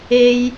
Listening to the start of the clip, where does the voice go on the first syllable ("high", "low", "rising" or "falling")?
high